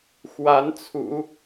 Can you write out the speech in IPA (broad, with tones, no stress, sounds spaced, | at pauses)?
x w a˧˥ n t͡sʰ ṵ˨˩˦